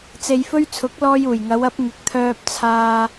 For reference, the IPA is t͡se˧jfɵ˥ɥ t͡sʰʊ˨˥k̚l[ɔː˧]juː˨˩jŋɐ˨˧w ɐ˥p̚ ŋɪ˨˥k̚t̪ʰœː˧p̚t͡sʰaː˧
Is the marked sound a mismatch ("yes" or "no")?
no